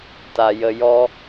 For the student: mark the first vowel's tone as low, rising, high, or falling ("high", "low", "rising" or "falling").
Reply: low